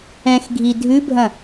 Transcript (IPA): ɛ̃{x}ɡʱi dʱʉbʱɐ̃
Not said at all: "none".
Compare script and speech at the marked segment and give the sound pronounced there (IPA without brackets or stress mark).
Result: x